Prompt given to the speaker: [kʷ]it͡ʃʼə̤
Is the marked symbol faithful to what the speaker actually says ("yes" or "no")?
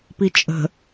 no